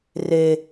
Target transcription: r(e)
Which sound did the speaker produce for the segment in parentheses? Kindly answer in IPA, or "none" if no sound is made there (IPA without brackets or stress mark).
e